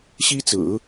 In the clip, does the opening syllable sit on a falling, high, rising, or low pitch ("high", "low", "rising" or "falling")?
high